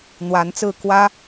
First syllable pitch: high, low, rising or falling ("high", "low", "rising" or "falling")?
rising